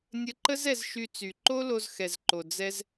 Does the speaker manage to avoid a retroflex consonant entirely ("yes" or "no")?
yes